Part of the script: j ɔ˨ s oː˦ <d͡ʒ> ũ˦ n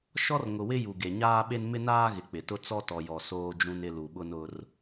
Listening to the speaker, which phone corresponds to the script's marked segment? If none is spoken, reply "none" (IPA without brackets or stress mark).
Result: d͡ʒ